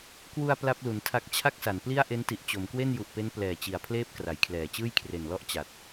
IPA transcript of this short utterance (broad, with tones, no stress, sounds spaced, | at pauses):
k w u˧ a̯ p l a˦˥ p̚ l u˩˦ n tʰ a˦˥ k̚ t͡ɕʰ a˥˩ k̚ s a˩˦ n p l i˥˩ a̯ ʔ e˦˥ n t i˨˩ ʔ t͡ɕ o˩˦ m k w e˥˩ n j u˨˩ ʔ p e˦˥ n p l ɛː˨˩ t͡ɕ i˨˩ a̯ pʰ l eː˥˩ p̚ k r a˩˦ j kʰ l ɛː˨˩ t͡ɕ ɯː˥˩ j kʰ r e˨˩ n l ɔ˥˩ ʔ t͡ɕ a˨˩ t̚